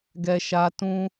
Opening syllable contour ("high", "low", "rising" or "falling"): low